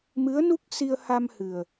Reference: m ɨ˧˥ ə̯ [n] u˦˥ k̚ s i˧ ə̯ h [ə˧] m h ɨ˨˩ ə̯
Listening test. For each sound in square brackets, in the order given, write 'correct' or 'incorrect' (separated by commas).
correct, incorrect